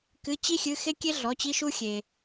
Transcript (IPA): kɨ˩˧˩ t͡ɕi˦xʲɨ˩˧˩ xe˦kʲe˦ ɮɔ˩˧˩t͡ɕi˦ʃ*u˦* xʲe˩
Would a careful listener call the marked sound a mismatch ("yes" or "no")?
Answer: no